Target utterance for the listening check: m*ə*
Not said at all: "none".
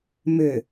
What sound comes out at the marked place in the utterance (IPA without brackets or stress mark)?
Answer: ʏ